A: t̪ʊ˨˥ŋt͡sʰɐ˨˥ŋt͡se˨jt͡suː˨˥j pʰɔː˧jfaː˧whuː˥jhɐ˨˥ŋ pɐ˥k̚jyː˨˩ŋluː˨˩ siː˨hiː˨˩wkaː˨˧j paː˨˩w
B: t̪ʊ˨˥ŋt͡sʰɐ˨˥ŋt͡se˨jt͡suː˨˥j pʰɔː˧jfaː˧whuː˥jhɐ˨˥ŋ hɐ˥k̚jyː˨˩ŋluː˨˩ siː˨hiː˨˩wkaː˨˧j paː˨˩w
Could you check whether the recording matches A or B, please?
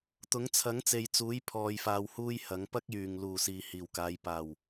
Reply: A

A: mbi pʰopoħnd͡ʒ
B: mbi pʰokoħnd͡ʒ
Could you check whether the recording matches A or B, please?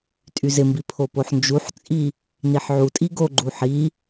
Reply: A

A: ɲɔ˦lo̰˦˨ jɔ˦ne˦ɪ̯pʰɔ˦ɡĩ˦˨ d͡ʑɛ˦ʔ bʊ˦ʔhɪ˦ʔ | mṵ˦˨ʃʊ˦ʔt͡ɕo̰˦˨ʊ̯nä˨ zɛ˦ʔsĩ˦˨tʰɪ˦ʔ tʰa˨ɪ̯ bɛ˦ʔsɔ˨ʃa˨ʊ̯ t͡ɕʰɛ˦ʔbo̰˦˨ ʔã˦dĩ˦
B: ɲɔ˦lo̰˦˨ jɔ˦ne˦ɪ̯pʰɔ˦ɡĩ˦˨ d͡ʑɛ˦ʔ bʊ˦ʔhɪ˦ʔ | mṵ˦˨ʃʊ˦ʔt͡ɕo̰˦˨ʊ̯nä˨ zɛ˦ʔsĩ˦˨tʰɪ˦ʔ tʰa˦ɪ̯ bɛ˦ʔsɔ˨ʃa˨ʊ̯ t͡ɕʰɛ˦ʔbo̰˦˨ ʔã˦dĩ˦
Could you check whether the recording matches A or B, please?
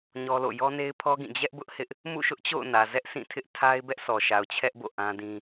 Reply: B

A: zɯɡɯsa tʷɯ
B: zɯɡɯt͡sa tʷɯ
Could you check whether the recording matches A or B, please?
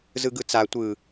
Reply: B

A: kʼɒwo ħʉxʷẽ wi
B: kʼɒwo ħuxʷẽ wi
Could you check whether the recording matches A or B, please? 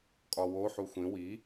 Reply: B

